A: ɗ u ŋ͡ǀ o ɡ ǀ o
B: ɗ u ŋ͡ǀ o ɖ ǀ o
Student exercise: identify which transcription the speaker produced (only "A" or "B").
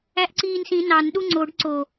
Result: B